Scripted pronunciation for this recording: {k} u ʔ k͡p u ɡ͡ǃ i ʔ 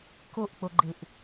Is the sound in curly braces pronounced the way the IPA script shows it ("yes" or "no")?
yes